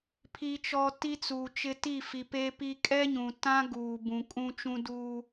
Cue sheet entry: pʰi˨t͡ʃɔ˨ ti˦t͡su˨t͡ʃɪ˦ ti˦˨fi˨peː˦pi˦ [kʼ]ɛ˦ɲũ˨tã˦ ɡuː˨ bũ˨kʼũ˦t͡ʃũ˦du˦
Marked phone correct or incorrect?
correct